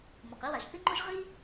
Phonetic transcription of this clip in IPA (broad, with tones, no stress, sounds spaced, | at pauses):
m o˩ q i˥ w a˩ ʒ θ i˥ ŋ͡ǃ o˥ ʒ ʁ i˥